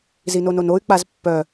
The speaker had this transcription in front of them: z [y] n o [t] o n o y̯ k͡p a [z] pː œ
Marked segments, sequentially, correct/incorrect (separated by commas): incorrect, incorrect, correct